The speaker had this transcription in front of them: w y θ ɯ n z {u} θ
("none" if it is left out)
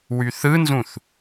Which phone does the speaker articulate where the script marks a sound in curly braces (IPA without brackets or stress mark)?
ũ